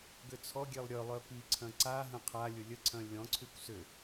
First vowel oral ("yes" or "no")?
yes